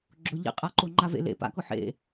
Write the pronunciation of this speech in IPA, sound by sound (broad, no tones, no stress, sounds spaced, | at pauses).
ɡ͡ǁ ʊ ʎ ḭ qʼ a ǃ o ŋ͡ǃ a v ḛ l ḛ p a̰ k ʊ ħ ḛ